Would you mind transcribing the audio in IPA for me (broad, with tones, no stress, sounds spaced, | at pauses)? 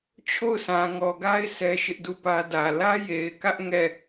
t͡ɕʰ o˦˨ ʊ̯ s ã˨ ŋ ɔ˨ ɡ a˦ ɪ̯ sʰ ɛ˦ ʃ ɪ˦ ʔ d u˦˨ p ä˦ d ä˨ l ä˦ j e˨ ɪ̯ k ä˦ ʔ ŋ ɛ˦˨